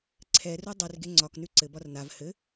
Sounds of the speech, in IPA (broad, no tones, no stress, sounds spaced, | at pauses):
ǀʰ ɛ r u dˤ ʉ r ɡ e ŋ͡ǀ ɒ k n ʉ ǀ ɘ b ɒ r n a v h ɘ